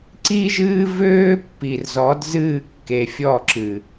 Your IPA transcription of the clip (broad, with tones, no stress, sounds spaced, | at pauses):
ǀ i˦ ʒ ɨː˦ v øː˦ pː i˨ r z ɔ˨˦ d z ɨː˦˨ kː e˨ fʲ ɔ˦˨ ǁ ɨ˨